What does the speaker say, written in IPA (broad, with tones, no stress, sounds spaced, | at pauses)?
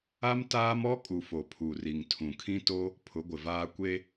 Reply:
a˦ m t aː˦ m ɔ˦ kʼ u˨ f o˨ pʰ u˨ r i˨ ŋ tʰ ũ˨ kʰ ĩ˦ t o˦ | pʰ ʊ˨˦ ɡʷ ɪ˨ v aː˦ kʷ e˦